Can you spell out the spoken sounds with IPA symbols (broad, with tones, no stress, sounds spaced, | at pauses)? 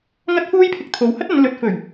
ŋ ɐ˥ t̚ f uː˥ j pʰ ɪ˧ k̚ t̪ʰ o˨ w h ɐ˥ t̚ ɐ˨˧ n l ɵ˨ t̚ f ɵ˨˩ ɥ